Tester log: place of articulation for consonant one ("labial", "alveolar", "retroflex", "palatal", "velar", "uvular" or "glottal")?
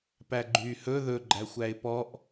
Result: labial